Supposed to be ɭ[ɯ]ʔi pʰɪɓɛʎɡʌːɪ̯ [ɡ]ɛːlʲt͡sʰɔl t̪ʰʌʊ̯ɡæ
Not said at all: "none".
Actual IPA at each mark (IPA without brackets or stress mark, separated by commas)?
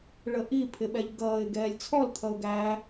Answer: ə, ɡ